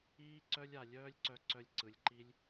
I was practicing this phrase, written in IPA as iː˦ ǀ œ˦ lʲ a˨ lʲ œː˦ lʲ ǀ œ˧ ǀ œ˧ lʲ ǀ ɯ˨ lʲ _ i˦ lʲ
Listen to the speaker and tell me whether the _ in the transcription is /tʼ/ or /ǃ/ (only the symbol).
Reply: ǃ